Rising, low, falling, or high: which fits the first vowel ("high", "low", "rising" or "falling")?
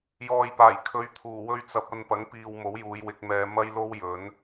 low